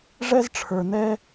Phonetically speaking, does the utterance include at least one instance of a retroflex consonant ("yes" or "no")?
yes